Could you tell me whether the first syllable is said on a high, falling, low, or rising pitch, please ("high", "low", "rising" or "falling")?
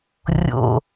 low